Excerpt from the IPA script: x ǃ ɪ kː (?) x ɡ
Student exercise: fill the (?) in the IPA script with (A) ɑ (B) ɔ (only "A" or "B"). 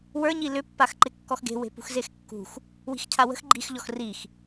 B